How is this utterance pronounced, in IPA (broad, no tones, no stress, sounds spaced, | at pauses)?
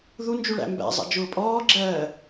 ð u n d͡ʒ u ɭ æ̰ m b æ̰ zˤ ɑ̰ d͡ʒ ʊː pʼ ɔː ɡ͡ǁ ɜː